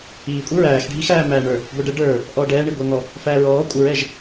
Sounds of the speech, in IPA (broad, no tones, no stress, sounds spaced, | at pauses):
iː kʷʼ ɪ ɹ æː x ɖʱ i x æː m æː ɳ ə˞ | ɡʷ ɛ ɖ ə ɖ ə˞ | ʔ ɔː ɖ ɛː ɳ i ɡʷ ɛ ŋ ɔ | f æː ɹ ɔː kʷʼ ə ɹ ɛ ʒ